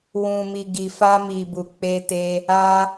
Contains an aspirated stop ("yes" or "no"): no